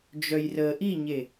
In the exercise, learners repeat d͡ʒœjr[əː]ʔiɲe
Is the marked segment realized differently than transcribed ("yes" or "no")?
no